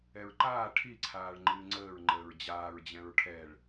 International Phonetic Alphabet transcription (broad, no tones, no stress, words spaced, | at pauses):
ɛɹǃaː ʈʰiǀʰaːɭ ŋ͡ǃɨːŋ͡ǀəːɹ ŋ͡ǃəːɹd͡ʑaːɹd͡ʑɛ̃ɹ ʈʰɛɭ